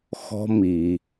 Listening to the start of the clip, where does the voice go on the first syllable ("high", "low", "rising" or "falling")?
high